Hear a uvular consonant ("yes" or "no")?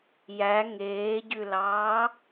no